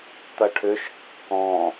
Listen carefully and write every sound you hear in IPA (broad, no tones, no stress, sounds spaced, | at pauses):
t̪ ɐ ʈʰ ʏ ʃ kː ɔ̃